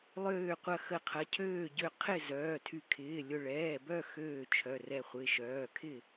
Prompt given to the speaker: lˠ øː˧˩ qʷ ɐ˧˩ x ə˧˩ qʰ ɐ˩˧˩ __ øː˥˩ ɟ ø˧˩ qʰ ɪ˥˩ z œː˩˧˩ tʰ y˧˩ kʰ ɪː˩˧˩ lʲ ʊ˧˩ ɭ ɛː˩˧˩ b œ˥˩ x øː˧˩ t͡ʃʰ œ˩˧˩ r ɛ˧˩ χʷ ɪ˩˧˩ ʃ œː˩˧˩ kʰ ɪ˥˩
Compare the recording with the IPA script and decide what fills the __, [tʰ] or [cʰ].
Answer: cʰ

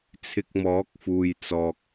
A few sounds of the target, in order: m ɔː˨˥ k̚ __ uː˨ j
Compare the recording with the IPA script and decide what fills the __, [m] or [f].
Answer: f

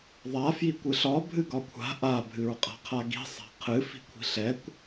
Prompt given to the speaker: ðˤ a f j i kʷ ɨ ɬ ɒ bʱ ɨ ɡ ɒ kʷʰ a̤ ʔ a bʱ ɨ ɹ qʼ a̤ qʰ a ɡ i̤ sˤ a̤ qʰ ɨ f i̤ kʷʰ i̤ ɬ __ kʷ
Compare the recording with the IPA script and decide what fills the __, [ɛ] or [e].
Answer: ɛ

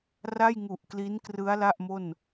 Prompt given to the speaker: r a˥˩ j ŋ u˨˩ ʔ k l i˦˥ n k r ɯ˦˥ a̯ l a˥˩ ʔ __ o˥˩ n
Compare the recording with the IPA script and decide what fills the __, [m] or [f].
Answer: m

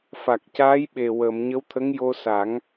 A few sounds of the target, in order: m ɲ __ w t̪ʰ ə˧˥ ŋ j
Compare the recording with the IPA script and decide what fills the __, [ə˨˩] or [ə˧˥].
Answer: ə˧˥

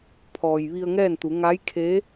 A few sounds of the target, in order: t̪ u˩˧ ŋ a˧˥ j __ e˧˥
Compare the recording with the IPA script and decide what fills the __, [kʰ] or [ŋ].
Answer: kʰ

